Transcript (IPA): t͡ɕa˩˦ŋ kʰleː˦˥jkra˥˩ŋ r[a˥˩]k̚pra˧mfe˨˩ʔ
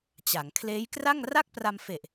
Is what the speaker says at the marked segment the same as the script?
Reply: yes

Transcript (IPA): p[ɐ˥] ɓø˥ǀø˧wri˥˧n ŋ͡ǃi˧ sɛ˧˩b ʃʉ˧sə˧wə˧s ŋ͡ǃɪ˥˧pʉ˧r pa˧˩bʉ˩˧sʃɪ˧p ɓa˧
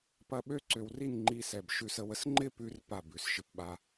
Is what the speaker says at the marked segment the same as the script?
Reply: yes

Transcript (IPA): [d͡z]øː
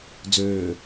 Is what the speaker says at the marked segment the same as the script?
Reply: yes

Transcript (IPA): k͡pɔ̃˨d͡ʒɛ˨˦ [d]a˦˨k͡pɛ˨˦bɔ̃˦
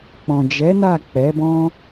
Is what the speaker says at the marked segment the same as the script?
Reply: no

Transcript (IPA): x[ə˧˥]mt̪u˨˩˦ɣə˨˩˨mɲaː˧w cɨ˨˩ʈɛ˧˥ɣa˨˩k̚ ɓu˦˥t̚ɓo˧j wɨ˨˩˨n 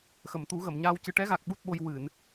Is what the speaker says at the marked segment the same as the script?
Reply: no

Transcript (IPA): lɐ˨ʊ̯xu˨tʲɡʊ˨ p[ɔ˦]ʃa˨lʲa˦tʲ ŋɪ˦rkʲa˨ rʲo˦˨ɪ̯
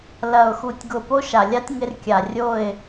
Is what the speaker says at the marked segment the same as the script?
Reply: no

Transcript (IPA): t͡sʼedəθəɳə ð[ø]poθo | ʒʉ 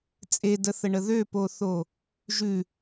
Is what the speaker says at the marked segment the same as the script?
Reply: yes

